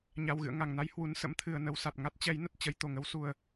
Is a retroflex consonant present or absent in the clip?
absent